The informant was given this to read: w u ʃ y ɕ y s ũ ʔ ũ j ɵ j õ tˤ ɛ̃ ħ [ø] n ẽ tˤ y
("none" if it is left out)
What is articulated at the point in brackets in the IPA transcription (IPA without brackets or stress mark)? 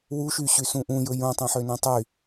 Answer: ø